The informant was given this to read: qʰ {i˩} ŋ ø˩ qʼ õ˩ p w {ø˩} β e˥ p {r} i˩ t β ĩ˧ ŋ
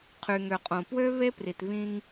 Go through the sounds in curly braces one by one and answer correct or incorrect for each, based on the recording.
incorrect: y˩, incorrect: ø˥, correct

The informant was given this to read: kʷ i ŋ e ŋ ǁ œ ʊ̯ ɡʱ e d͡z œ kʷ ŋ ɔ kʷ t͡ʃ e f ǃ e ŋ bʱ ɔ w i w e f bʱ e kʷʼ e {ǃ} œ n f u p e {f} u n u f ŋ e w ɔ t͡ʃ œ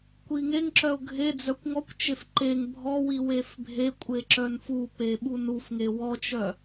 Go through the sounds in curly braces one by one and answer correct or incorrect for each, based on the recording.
incorrect: ǁ, incorrect: ɓ

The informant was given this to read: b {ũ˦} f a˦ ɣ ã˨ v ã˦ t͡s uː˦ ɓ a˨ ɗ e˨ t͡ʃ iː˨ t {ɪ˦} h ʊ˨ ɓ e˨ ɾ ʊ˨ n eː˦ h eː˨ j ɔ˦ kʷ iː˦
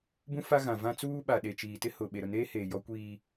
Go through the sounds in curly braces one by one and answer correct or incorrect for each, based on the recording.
correct, correct

